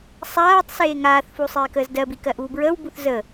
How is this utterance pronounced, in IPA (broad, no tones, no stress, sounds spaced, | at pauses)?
sˤ aː tˤ s eː ŋ aː θ f u sˤ eː k əː z d ɜ b i k ɜ ʔ uː b ɹ əː w b u θ z ə